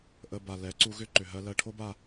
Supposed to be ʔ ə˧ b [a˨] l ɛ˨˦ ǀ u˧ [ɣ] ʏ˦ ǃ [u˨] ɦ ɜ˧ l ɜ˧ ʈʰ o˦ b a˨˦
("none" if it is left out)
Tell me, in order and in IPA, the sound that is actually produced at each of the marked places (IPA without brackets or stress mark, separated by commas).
a˨, ɣ, ʏ˨